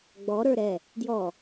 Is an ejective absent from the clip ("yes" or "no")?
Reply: yes